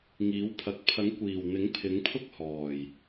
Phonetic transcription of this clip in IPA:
ŋ iː˨˥ w pʰ ɐ˨˥ k̚ pʰ ɐ˨˥ ŋ kʷ iː˨˩ w n̪ ɪ˨˥ ŋ pʰ ɪ˨˥ ŋ pʰ ʊ˥ k̚ h ɔː˨˩ j

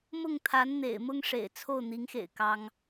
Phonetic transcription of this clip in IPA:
m ʊ˥˩ ŋ t̪ʰ a˧˥ n n̪ ḛ˨˩ ɪ̯ m ʊ˥ ŋ ʂ ḛ˨˩ ɪ̯ t͡sʰ o˥˩ ʊ̯ n̪ i˧˥ ŋ x ḛ˨˩ ɪ̯ k ɑ˥ ŋ

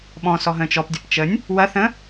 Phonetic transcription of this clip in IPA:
ɓ ɔ̃ s ɔ ɦ ə̃ː t͡ʃ ɔ p dʲ ɐ p t͡ʃ ə nʲ | w ɐ θ ə̃

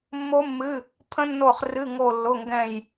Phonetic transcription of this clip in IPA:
mː o˦˥ mː ɨ˧˥˧ | pʰ ə̃˦˥ nː o˦˨ χ r ɨ˧˥˧ ŋ o˦˨ lː ʊ˧˥˧ ŋ ɡ ɛ̃˦˨ j

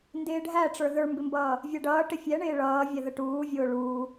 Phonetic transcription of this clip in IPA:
n d ɪː ɖʱ æ ʈ͡ʂ ə˞ ð ə˞ m b ɪ m b ʌː | vʲ æ ɖ ʌː ʈ ɪ fʲ ɛ ɳ ɪː ɭ ʌː vʲ ɛ ð ə ʈ uː vʲ ʊː ɭ uː

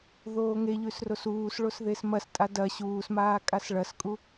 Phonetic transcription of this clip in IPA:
ð oː ŋ e ʎ ʉ s r o s uː s ɭ o s ð e s m ɐ s tʼ a d ɐ ɕ uː s m aː kʼ a s ɭ ɐ s kʼ u

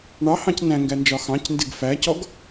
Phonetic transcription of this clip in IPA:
ɳ ɑ h ɑ̃ c n æ̃ ŋ ɡ æ n d͡ʒ ɒ x ɑ̃ c n d ɪ ɡ f æ c ɔ ɡ

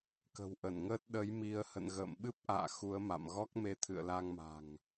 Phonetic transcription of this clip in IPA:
k ə̤˨˩ w ʔ ə˧˩ n ŋ əː˦˥ t̚ ɗ ə˨˦ j m i˧ ə̯ h ə̰˧˨ n ɣ ə̰ː˧˨ m ɓ ɨ˦˥ p̚ ʔ a̰ː˧˨ x u˨˦ ə̯ m a̰˧˨ m ɣ ɔ˦˥ k̚ m e˨˦ t̪ʰ ɨ̰˧˨ ə̯ l a˧ ŋ m a̤˨˩ ŋ

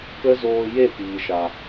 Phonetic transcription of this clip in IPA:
k ə˦ z oː˧ j e˦˨ p iː˨ ʃ a˨

